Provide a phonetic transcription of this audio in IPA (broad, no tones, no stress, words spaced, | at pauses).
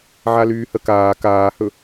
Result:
ʕalyːhəkaː kaːhɵ